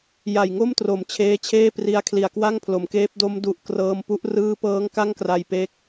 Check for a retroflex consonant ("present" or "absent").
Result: absent